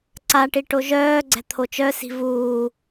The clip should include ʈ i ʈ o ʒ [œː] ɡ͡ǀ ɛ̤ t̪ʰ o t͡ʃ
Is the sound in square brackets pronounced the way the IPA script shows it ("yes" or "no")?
yes